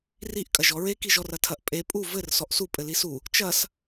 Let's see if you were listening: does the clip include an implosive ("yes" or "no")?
no